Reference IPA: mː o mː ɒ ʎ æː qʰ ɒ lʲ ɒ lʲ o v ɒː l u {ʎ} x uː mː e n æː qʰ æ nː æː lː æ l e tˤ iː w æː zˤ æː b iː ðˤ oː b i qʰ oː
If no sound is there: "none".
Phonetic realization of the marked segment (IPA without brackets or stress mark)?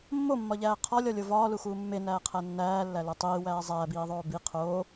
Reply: none